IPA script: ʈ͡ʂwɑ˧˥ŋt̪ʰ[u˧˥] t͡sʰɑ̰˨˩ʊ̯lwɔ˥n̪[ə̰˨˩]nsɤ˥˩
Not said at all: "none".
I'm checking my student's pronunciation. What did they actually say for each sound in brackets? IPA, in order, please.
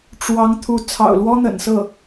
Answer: u˧˥, ə̰˨˩

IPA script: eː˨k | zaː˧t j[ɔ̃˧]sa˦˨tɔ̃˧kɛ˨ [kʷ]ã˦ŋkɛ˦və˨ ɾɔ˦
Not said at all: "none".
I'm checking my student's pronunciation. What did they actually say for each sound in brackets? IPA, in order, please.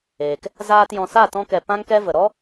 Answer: ɔ̃˨, p

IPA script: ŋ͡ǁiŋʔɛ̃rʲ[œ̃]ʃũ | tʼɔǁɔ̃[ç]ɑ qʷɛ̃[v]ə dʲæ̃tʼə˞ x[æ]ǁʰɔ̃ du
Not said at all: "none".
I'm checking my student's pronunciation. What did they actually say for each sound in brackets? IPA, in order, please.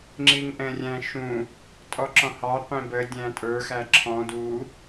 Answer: æ̃, h, b, æ

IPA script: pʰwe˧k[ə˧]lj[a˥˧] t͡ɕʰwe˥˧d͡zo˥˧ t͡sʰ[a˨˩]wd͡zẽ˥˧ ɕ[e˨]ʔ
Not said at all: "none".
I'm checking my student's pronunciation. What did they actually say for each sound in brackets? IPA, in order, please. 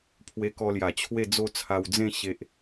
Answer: ɔ˧, a˨˩, a˧, e˨

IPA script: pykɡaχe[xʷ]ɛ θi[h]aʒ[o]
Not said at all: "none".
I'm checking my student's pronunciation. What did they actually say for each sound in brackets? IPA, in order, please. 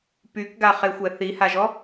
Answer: xʷ, h, ɔ

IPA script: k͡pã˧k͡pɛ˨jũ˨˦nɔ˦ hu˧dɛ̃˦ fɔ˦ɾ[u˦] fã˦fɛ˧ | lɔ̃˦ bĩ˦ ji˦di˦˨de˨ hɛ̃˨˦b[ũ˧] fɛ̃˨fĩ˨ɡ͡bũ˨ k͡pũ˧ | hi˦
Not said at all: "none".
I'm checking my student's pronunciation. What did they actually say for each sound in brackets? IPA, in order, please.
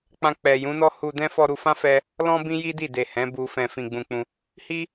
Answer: u˧, u˧

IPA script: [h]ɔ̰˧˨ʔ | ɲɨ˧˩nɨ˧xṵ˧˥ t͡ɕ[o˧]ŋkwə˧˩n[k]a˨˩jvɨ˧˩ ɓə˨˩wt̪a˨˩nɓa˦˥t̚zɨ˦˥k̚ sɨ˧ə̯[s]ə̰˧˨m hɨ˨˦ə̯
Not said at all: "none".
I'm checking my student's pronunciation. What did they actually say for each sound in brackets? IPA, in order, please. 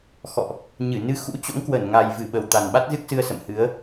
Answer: x, o̰˧˥, ŋ, s

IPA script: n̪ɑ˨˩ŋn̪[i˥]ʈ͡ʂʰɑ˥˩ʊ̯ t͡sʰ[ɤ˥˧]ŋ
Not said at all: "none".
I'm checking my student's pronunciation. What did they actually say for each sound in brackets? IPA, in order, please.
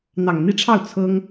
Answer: i˥˧, ɤ˥

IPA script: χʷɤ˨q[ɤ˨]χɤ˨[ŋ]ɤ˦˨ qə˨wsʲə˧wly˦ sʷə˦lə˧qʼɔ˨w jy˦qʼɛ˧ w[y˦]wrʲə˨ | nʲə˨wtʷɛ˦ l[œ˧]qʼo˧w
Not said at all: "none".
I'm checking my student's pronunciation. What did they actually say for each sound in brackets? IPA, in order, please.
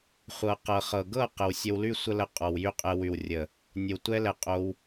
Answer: ɤ˨, ɡ, y˨, ɛ˧

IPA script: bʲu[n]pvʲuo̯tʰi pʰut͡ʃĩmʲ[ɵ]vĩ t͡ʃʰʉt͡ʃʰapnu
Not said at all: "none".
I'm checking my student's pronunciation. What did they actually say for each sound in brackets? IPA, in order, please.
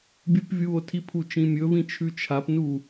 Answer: none, ɵ

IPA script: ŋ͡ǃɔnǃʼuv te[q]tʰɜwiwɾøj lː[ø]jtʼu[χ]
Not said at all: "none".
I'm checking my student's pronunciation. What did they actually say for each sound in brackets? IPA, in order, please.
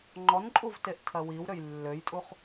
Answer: ʔ, ø, χ

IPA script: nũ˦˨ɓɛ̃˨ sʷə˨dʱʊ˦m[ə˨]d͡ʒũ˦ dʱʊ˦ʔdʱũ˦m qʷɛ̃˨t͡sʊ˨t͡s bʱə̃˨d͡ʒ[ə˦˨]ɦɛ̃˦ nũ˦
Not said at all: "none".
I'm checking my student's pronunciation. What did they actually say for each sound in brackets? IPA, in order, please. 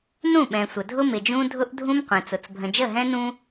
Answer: ɪ˨, ə˦˨

